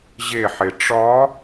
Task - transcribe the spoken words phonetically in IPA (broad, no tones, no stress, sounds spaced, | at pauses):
ʑ e ħ e ʈ͡ʂ ɒ